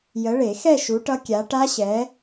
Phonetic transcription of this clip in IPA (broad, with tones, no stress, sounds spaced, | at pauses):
j ə˨˦ ɭ e˨˩˦ x ɛ˥˧ ʃ u˨˦ ʈ ʌ˦˥ kʲ a˨˦ ʈ a˦˥ ɕ ɛ˨˦